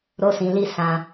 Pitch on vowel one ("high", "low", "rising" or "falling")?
high